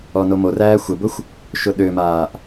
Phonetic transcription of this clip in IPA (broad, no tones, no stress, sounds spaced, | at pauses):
ɔ n o m o r æː xʷ ə b ʊ xʷ | ʃ ʊ ɗ ø m aː ʔ